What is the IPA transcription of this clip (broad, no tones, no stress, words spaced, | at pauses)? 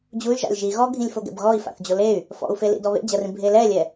d͡ʑuy̯ ʒa̰lʲʒi ɣɔɡʱĩlʲfo ɡɛ̰bɣɔi̯ fa̰θd͡ʑoley̯ | fɔ̰u̯felḭ dɔβḛd͡ʑɐrĩ bʱelɛlʲɛ